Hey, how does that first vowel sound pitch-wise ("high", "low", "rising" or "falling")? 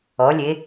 rising